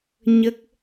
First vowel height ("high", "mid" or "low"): mid